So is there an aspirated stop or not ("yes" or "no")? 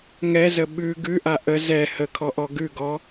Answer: yes